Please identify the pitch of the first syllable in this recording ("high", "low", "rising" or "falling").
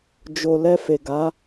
low